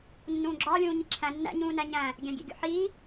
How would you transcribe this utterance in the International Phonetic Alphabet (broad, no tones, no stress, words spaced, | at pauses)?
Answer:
nːũːɡ͡ǁɒː lʲũːɲiǁʰæ̃ nːæ̰ ɲũːnæɲæ̃ | ɡʲæ̃ɡʲḛɡʲo̰ħiː